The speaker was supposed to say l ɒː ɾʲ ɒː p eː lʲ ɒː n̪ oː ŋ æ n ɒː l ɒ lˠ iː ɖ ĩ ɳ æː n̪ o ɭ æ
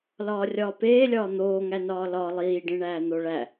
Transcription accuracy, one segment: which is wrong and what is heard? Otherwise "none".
ɾʲ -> rʲ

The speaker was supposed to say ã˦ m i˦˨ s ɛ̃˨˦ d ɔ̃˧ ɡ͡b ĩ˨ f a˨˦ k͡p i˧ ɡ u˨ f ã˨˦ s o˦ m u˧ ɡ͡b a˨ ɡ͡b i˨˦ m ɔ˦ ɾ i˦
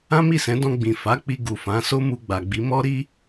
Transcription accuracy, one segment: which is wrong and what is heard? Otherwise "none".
none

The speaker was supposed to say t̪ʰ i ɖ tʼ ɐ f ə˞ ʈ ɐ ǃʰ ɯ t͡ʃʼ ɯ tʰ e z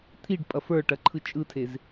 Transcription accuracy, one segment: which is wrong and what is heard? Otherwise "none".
tʼ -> pʼ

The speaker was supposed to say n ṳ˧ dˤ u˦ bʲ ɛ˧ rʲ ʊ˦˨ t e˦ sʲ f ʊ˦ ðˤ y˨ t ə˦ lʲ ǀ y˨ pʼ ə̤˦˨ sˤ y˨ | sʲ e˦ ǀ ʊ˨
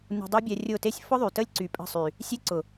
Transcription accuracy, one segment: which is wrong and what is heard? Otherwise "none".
none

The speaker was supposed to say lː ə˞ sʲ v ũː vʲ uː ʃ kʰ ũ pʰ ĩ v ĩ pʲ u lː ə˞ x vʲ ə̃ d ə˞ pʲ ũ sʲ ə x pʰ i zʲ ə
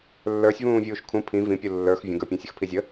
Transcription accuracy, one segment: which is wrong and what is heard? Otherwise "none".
d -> ɡ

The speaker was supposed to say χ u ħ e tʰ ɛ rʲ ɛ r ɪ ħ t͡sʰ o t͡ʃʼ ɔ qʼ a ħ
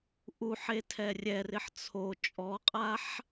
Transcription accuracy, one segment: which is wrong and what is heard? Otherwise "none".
χ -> ʔ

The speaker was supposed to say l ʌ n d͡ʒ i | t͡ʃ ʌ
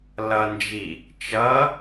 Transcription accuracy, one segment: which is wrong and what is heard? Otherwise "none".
none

